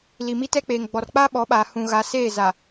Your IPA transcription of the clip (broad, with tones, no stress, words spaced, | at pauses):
li˨mi˦tɛ˦k͡peː˨ŋ ɡ͡bɔ˨rk͡paː˦ɓɔ˨˦ɓaː˨ hũ˨ɣa˨˦seː˦˨ za˨